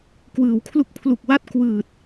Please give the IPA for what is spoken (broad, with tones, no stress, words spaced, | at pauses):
kwɯː˩˦wkʰlu˥˩k̚ pʰlu˨˩k̚wa˥˩t̚ kwɯː˨˩t̚